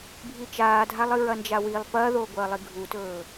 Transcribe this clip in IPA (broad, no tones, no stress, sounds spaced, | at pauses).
bʱ i t͡ʃ aː dʱ a lˠ ɨ ɹ ɐ n d͡ʒ a w i lˠ p ɐː ð oː ɡʷ ɐː lˠ i ɡʱ u t ɵː